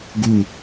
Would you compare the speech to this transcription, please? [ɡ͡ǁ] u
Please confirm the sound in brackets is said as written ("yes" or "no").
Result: no